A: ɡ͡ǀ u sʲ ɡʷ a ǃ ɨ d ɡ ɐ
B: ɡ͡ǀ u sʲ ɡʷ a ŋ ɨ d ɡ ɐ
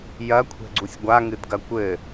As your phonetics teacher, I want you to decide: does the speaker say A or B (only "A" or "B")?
B